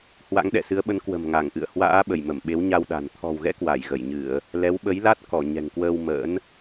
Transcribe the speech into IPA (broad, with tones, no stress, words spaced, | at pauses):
hwa̰˧˥ŋɗɛ̰˧˨sɨ˨˦ə̯ɓə˨˦n kwə̤˨˩mŋa˧˩ŋʔɨ̰˧˨ə̯ hwa̰ː˧˥ ɓə˧˩jmə˧˩m ɓe˨˦wɲa˧wɗa̤˨˩n t̪ʰɔ̤˨˩wɣɛ̰˧˥ kwa˧˩jɣə˧˩jɲɨ˧˩˨ə̯ | lɛ˨˦wɓə˨˦jla˦˥t̚ kɔ˧˩ ɲɛ̤˨˩ŋkwəː˧w mə̰ː˧˥n